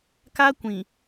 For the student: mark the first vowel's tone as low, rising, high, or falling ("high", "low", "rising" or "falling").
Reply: high